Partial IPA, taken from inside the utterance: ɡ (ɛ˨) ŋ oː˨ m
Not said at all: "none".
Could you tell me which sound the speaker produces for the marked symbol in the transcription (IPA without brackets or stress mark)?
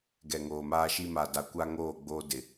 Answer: ɛ˨